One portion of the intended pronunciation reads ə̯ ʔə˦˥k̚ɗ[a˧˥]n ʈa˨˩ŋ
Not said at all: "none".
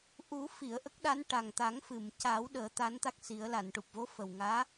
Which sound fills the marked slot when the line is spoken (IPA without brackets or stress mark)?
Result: a˧˥